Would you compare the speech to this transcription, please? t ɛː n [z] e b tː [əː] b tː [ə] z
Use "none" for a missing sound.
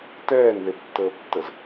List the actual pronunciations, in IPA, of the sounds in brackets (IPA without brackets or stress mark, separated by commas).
ð, əː, ə